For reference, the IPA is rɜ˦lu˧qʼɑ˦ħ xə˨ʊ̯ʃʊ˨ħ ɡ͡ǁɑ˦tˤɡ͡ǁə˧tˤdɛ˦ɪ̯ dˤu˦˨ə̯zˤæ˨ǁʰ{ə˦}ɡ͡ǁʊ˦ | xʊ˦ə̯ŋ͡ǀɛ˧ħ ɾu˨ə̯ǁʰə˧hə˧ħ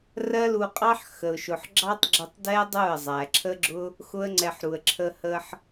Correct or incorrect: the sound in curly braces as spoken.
correct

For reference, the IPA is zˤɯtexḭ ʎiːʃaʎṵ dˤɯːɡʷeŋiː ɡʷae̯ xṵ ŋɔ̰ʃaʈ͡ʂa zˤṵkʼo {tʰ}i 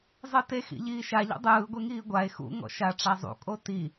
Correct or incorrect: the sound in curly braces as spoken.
incorrect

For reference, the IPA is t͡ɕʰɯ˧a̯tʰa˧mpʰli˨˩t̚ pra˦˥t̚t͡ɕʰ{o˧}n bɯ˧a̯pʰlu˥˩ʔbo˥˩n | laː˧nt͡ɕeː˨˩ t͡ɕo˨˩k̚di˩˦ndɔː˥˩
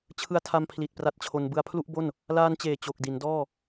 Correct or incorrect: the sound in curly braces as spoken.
correct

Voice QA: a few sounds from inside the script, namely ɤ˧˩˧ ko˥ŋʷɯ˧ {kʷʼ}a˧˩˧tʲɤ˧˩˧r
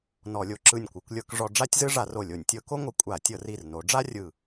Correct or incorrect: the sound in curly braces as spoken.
correct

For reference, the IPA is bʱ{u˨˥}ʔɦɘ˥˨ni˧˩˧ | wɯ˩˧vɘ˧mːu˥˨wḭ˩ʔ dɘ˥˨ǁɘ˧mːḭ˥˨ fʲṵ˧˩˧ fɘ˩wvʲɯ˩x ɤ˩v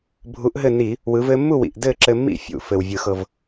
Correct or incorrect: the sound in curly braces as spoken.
correct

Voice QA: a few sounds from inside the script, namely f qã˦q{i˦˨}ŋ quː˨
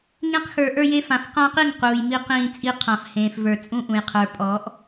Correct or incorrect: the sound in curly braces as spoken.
correct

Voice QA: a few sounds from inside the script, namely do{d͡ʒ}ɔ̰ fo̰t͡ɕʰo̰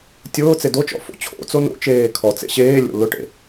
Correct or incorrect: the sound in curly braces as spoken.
incorrect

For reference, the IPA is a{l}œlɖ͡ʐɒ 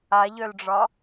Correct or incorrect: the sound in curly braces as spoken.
incorrect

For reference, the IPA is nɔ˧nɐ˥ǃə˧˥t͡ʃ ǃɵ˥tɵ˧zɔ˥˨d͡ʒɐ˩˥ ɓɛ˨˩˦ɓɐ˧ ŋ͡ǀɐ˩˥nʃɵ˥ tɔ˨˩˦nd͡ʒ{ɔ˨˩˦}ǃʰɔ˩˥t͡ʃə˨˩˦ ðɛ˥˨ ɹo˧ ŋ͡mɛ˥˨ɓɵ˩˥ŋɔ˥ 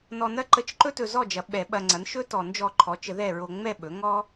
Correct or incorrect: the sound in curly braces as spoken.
incorrect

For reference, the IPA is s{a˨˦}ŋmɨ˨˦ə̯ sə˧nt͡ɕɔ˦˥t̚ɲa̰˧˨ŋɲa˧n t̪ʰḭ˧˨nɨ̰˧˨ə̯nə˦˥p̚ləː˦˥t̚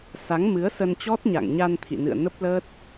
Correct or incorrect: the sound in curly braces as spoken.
correct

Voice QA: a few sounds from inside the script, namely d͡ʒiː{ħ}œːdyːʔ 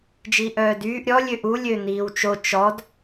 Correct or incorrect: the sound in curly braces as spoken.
incorrect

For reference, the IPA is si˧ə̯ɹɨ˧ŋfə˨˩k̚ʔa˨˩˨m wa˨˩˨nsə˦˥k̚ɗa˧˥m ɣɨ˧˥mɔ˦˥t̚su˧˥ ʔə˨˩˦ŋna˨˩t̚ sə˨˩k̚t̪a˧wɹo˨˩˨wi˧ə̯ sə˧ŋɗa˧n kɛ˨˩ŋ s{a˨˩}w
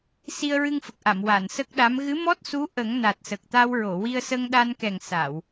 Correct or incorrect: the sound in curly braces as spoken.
incorrect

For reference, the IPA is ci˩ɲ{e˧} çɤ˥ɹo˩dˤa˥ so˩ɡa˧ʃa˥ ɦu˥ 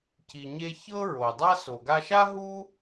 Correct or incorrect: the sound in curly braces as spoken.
correct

